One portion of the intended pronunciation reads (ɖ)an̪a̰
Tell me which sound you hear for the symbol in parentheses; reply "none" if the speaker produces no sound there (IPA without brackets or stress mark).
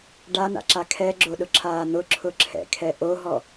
ɖ